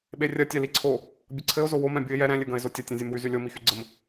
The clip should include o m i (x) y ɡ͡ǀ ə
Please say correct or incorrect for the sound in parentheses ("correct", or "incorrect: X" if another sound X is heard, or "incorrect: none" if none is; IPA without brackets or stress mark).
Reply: correct